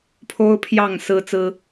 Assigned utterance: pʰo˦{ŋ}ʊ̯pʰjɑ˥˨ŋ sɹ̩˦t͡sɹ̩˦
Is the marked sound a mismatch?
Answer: yes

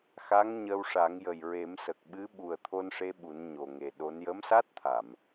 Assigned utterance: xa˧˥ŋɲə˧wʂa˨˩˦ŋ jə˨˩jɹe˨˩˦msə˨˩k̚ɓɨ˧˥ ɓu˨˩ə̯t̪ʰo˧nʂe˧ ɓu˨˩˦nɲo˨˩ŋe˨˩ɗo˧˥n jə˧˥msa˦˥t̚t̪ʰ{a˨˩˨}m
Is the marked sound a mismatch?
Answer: no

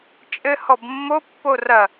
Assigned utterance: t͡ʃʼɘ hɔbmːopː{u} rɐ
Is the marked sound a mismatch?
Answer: yes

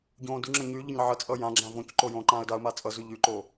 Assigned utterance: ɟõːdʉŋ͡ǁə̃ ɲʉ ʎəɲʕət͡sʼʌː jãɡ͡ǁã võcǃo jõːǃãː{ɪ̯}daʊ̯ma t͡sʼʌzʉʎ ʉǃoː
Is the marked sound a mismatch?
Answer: yes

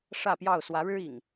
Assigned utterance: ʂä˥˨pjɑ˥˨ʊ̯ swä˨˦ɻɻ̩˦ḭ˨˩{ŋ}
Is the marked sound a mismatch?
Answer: no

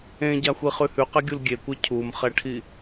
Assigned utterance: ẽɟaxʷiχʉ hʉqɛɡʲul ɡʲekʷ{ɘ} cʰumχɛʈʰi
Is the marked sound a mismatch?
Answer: yes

